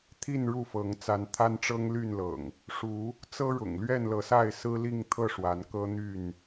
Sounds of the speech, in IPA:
t̪ʰi˥˨nɻu˥˨fɤ˨˦ŋ t͡sa˨˦nt̪ʰa˦nʈ͡ʂɤ˦ŋ ly˥˨nlɤ̰˨˩ŋ | ʂu˨˦ | t͡sɤ˦ɻʊ̰˨˩ŋ lɥɛ˥˨nlɤ˨˦sa˥˨ɪ̯ sɹ̩˦ li˥˨ŋt̪ʰɤ˥˨ ʂwa˨˦n kɤ˦n̪y˥˨n

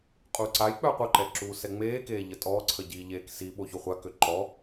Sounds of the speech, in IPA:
qʼuǀajk͡pœ qʷœǃɛ ǁuːsɛŋ͡meːkeː ʎətʼɔːǀʰə ɟiːʎeːksiɓo çoχʷakø ǃɔ

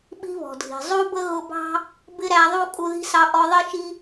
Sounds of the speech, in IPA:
ɓi̤˦βɔ̤˩dʱi̤˩ zˤu˥bə˥ɣʊ˦bɑ̤˥ | bɪ˥ɾæ˦ðˤu˥ kʼu˦ði̤˥sɑ˦ ʔɔ˦ðˤi˥ʃi˥

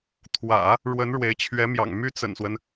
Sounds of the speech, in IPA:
t̪ʰwä̰˨˩˦ | ɻwə˧˥nɻwe˧˥ɪ̯t͡ɕʰɥɛ˧˥mjɑ̰˨˩ŋ my˥t͡sə̰˨˩nswə˦n

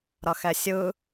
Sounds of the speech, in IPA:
ɾʌxɛsʲɯ

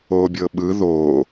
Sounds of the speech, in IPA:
oːbʲɤɓɯ ðoː

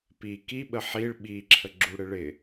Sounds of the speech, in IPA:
pi kiɓə ħiɭ ɓiǁʰə ɡ͡ǁuɽɪɭɪ

